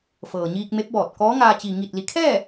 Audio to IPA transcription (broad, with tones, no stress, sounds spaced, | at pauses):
f ɤː˩ ɲ iː˧ k̚ m e˧˥ p̚ b ɔː˧˩ t̚ k ɔː˧˥ ŋ aː˧ t͡ɕ i˩ ŋ i˧˩ t̚ l i˩˧ kʰ ɛː˥˨